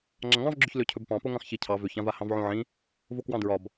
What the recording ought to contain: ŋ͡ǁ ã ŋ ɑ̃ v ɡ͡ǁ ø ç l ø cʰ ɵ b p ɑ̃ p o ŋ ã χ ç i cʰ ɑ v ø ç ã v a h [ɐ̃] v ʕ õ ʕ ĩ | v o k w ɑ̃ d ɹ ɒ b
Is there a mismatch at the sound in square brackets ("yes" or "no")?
yes